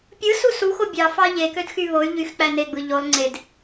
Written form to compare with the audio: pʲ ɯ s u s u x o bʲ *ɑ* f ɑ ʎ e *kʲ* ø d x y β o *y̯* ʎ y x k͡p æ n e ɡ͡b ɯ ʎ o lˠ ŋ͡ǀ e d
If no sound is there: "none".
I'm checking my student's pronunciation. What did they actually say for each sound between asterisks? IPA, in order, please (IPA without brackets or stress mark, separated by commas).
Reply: ɑ, k, y̯